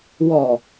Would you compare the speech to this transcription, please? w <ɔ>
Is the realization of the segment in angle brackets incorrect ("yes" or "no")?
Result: no